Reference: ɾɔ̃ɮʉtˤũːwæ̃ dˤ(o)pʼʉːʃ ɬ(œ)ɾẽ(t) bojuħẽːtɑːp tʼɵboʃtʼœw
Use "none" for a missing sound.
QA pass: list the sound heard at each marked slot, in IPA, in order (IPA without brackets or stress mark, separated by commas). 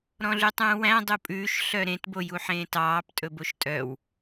u, œ, t